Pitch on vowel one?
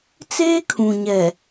high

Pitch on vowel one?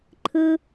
high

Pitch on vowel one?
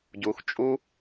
rising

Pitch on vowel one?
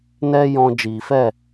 high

